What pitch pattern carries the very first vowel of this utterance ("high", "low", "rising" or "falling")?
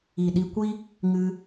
low